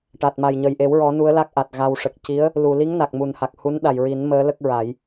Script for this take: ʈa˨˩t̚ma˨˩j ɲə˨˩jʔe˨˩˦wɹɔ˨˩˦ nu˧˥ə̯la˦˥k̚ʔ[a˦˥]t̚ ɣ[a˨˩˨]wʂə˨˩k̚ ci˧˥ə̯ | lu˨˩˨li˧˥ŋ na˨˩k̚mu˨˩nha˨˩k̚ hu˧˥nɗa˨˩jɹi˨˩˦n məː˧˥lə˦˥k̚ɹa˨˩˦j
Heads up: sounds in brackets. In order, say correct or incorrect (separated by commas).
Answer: incorrect, incorrect